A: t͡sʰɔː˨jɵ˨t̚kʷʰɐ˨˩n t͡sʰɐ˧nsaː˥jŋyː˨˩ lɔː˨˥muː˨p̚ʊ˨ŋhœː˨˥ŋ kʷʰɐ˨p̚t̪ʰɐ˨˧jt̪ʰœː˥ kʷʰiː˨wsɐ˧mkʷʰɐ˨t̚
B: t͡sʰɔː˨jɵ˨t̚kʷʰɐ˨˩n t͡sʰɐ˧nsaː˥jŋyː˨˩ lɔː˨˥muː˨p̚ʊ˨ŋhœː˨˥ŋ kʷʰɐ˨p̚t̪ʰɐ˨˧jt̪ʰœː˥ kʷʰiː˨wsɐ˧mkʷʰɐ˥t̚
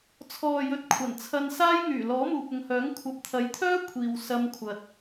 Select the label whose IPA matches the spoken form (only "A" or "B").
A